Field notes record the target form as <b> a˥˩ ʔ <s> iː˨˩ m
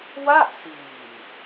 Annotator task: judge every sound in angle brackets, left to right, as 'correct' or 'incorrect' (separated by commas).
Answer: incorrect, correct